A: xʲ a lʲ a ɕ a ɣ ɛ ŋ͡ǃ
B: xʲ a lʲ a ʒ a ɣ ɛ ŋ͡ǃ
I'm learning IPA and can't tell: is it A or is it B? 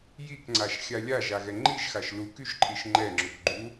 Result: B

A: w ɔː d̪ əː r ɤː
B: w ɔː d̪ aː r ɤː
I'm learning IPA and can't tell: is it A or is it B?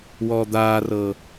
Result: B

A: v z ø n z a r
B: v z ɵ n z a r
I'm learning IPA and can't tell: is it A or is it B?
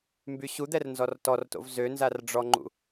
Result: A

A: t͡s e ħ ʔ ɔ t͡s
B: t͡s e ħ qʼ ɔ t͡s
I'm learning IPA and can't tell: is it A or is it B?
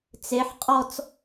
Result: B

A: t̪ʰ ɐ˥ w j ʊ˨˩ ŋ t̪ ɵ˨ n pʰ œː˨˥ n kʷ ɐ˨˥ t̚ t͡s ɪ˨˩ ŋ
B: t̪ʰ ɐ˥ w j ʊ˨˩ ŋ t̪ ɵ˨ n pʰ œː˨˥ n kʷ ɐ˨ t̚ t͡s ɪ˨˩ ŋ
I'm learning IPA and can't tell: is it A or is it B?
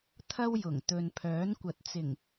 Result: B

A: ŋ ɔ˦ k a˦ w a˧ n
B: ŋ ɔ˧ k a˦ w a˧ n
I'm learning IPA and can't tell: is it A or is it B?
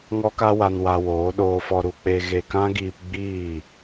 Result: A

